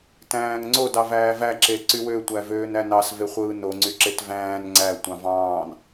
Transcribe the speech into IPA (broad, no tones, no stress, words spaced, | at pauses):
tæ̃ːŋŋ͡ǀod ɑvæːvæ ǁeǀywø tʷævøːnænɑs veχʷɯːno ŋ͡ǀyǁetvæ̃ːn ŋ͡ǀæ tʷɑ̃vɑ̃ːn